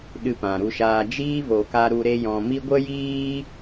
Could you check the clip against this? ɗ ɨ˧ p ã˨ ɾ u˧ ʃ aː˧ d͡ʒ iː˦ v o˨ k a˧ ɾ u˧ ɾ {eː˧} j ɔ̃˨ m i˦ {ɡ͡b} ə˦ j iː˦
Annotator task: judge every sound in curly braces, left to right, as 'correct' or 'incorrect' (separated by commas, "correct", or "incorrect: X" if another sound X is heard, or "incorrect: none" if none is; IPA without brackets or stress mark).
incorrect: e˧, incorrect: ɡʷ